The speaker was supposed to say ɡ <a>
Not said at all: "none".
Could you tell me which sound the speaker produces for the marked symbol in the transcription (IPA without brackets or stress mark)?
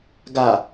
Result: a